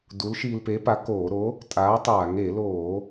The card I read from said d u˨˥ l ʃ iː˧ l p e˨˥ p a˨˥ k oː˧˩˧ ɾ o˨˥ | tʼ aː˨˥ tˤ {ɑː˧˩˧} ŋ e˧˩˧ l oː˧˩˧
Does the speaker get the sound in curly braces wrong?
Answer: yes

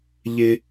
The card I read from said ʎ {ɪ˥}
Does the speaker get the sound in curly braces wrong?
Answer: no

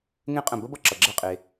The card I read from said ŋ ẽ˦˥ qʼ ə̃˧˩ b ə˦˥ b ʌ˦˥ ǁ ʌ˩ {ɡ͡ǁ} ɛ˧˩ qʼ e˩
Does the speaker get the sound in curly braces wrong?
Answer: no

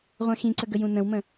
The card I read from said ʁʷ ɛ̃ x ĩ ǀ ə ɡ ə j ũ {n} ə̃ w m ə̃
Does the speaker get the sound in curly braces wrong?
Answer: no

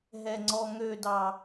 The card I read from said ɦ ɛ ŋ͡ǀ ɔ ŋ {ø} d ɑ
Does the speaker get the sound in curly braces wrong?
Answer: no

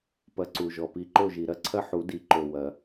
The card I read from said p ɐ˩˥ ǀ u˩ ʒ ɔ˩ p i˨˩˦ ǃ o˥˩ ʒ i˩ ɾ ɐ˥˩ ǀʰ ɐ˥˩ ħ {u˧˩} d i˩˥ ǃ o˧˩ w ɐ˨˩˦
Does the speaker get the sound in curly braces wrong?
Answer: yes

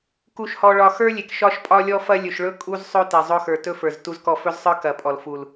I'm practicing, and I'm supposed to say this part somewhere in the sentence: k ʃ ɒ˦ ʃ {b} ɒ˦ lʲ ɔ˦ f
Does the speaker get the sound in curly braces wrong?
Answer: yes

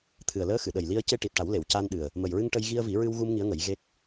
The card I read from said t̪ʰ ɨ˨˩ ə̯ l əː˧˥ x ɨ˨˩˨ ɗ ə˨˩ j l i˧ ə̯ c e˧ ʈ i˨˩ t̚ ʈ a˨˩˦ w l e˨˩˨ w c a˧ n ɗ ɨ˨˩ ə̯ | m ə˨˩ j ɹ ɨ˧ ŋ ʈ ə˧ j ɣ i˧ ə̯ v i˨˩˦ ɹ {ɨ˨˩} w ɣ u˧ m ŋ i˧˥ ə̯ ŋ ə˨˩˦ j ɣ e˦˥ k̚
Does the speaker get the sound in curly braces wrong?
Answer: yes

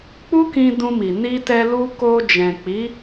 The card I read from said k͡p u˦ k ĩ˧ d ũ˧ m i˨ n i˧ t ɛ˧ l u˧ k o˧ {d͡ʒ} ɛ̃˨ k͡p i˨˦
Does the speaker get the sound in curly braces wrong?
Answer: no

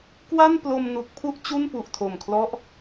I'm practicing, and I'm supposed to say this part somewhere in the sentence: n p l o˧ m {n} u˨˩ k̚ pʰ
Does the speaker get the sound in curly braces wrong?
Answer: no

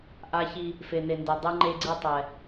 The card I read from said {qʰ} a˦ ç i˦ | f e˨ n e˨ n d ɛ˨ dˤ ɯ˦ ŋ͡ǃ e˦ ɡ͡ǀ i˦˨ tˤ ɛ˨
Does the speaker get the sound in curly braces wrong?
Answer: yes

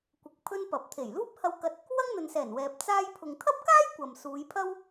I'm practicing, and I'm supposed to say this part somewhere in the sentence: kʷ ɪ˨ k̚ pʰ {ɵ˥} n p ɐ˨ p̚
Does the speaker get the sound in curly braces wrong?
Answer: no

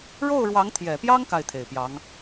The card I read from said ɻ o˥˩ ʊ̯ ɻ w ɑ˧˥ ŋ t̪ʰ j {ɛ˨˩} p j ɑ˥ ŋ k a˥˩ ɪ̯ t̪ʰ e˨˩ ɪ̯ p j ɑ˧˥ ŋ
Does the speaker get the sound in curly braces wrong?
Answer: no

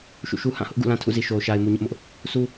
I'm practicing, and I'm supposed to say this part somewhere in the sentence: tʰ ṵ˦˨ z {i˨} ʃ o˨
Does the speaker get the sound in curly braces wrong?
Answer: no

